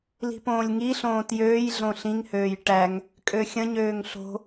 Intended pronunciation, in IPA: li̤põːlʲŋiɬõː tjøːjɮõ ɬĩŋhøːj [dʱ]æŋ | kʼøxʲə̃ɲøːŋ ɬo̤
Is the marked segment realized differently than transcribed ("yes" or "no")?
yes